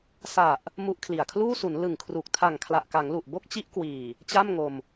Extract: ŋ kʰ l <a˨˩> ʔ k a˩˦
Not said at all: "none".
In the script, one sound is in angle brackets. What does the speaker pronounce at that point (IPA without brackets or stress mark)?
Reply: a˨˩